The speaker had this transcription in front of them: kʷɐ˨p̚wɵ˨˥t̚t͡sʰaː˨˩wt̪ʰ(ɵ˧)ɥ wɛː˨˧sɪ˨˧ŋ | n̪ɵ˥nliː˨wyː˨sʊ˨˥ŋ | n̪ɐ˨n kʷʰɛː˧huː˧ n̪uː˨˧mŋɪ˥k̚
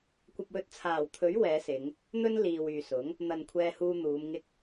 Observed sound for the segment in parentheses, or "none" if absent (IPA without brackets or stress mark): ɵ˨˥